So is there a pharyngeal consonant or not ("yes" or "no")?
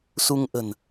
no